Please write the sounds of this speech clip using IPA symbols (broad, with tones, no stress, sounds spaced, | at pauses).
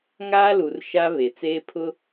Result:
ŋ aː˦ l u˨ r ʃ aː˦ β e˨ t͡s eː˦ pʰ ʊ˦